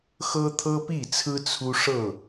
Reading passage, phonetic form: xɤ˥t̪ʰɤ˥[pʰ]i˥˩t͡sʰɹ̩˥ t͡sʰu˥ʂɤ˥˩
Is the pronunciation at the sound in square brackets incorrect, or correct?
incorrect